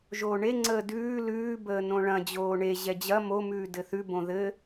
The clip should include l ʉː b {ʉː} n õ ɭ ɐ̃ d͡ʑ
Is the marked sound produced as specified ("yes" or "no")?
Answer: no